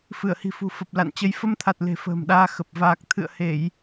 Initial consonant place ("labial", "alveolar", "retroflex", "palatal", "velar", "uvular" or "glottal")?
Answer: labial